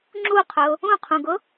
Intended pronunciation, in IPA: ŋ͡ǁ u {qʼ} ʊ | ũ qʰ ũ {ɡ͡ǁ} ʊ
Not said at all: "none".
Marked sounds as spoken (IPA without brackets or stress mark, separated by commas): qʰ, ɡ